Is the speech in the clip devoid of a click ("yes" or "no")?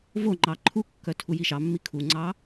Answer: no